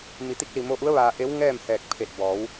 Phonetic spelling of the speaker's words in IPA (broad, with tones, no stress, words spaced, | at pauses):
mi˩˧t̪i˧k̚li˧˩ mo˧ʔu˧˥ə̯ ʋaː˧ʔe˧˥w ŋɛː˥˨mhɛː˧˩k̚ pʰe˧˩t̚ bɔː˩˧w